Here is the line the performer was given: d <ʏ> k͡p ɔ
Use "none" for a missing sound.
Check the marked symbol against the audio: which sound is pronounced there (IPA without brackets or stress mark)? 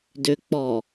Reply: ʏ